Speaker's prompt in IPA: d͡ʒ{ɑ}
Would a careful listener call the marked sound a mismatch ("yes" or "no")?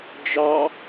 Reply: no